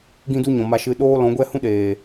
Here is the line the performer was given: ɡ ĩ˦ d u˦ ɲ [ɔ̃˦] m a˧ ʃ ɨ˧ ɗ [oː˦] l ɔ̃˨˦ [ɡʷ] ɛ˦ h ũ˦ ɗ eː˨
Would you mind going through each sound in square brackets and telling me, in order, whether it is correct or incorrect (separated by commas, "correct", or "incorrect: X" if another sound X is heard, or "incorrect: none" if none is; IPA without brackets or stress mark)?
incorrect: ɔ̃˨, correct, correct